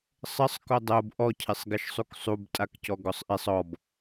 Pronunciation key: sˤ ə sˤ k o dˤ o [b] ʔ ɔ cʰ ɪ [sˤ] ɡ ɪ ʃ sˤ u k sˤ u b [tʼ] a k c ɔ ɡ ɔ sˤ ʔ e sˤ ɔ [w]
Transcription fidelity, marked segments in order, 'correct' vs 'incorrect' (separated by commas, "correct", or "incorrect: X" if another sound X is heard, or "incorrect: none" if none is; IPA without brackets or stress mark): correct, correct, correct, incorrect: b